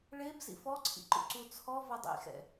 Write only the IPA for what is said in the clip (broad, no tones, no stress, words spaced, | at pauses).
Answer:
ɭeb zḭfɔǀʰḭǃṵ ǀut͡sʰɔ vɐdˤḭxɛ̰